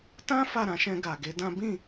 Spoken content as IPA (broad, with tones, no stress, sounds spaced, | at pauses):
t ã˦ f a˦˨ ɾ ã˧ ʃ ɛ̃˧ ɡ a˨ ɡ e˨˦ d ã˦ b ĩ˦˨